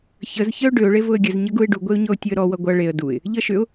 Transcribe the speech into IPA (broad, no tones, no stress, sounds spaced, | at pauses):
ç ə z ç ə ʊ̯ ɖ ʏ ʊ̯ ɭ e v ʊ ə̯ ɡʲ ə z ɲ ə ɡ u ɪ̯ ɖ u ɡʷ e ʊ̯ ɲ ɔ ʊ̯ tʲ ʊ ə̯ ɾ ɔ w ʌ ɡʷ ʌ ɭ e ə̯ d u ɪ̯ | ʎ ʌ ʃ ʏ ʊ̯